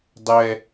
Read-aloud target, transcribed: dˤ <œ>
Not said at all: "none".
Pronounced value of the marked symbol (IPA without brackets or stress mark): ɛ